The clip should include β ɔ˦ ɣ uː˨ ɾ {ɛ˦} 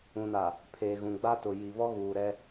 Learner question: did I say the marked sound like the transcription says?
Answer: yes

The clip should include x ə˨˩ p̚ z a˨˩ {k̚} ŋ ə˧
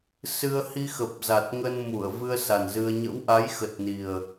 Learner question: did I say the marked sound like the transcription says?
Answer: no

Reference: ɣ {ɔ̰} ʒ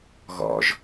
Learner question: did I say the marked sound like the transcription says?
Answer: yes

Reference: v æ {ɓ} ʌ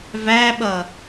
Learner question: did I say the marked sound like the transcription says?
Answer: yes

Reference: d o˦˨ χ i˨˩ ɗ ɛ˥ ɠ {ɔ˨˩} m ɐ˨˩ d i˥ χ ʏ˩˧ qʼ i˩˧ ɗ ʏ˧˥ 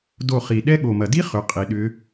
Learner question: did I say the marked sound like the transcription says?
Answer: no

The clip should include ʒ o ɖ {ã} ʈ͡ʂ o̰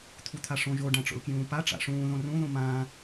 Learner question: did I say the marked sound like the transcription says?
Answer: yes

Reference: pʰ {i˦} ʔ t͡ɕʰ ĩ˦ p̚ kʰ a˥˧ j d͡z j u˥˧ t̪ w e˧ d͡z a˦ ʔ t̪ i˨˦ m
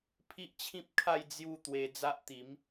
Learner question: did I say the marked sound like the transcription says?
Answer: yes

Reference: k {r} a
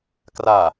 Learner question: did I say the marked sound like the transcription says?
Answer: yes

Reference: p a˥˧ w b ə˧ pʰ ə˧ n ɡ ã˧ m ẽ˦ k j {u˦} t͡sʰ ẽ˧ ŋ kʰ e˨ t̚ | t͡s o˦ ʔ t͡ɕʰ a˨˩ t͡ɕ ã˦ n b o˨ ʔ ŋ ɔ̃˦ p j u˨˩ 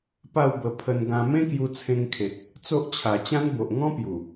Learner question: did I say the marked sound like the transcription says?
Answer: no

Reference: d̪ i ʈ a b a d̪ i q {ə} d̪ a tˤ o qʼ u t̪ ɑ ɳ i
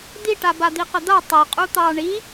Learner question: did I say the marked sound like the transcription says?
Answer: yes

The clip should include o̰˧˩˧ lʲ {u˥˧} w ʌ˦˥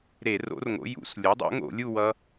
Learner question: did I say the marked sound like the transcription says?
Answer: yes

